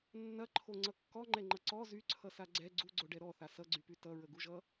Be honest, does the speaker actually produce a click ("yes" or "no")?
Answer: yes